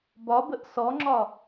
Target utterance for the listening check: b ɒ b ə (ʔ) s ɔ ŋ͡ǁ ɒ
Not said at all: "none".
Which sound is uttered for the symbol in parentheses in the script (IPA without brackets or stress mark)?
ʔ